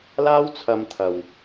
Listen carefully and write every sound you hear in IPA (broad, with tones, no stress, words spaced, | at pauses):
laː˥wt͡sʰɐ˧m t̪ʰɐ˨w